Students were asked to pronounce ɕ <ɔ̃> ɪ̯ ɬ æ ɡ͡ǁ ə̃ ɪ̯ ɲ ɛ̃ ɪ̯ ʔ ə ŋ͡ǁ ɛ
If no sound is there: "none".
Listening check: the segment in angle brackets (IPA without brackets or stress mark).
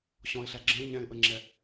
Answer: ɔ̃